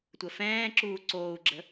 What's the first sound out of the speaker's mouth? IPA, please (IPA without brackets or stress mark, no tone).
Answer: tʷ